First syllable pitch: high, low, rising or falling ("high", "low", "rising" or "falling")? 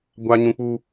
high